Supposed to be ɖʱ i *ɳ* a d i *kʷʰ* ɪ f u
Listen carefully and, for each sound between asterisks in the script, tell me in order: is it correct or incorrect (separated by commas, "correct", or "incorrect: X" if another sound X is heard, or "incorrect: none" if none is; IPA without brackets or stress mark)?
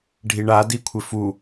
correct, correct